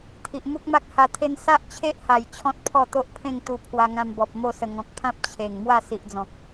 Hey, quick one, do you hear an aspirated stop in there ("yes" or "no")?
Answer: yes